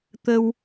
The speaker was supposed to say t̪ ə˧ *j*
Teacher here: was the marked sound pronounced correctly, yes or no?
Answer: no